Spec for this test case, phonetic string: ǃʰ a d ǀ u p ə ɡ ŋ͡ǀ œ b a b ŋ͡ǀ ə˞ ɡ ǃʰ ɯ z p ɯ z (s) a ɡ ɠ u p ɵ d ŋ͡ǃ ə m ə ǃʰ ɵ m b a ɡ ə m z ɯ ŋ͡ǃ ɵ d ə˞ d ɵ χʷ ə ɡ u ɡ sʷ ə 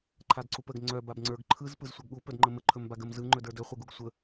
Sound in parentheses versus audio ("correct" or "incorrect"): incorrect